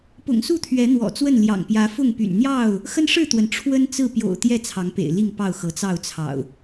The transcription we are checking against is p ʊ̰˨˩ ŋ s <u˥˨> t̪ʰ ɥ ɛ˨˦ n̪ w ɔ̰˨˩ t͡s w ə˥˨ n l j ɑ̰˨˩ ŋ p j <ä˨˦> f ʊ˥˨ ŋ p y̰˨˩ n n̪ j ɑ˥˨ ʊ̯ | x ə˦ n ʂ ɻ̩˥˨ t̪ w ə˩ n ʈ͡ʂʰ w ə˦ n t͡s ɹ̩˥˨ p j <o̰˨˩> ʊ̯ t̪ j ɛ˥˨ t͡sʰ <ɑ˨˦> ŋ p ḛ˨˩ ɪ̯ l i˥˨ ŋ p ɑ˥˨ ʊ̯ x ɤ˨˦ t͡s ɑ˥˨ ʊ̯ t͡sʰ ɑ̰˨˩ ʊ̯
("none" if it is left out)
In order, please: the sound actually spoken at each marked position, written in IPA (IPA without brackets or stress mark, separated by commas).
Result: u˥˨, ä˨˦, o̰˨˩, ɑ˨˦